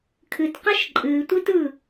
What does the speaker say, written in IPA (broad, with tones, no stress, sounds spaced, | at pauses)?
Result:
kʰ ɨ˨ t q ə˦ ʃ ǃʼ ɨː˨ tʷ ɨ˦ t ɯ˦˨